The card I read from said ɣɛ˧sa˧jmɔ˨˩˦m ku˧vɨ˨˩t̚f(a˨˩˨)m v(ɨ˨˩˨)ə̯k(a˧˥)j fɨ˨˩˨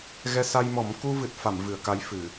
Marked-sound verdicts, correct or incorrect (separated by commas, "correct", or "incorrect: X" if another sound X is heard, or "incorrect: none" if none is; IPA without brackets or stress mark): correct, correct, correct